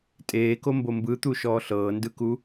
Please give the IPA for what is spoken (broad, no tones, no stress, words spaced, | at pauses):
tʼeːkombo mbɯt̪uʃɔː ɬɤːndɯku